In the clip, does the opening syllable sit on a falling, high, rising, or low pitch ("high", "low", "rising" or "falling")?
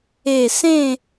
low